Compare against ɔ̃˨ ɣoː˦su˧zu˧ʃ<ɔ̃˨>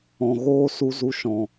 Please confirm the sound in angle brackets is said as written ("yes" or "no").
yes